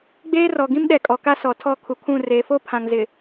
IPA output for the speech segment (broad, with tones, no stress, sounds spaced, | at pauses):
ɡ͡b eː˦ r ɔ˨ ɡ ĩ˦ m ɗ ɛ˨ kʼ ɔ˨ k a˦ s ɔ˨ tʰ ɔ˦˨ kʰ u˨ kʰ ũ˦˨ r eː˨ f o˦ pʰ ã˨ ŋ z ɪ˨